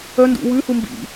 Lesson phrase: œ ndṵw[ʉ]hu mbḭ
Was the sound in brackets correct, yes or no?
yes